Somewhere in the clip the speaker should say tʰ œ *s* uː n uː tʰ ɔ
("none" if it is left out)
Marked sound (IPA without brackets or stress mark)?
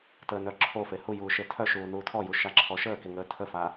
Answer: ʃ